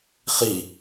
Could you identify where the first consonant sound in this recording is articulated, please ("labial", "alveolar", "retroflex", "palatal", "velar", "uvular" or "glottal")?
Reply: uvular